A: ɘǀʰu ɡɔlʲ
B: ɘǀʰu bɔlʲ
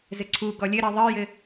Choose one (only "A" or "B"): A